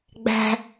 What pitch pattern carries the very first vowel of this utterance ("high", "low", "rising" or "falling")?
high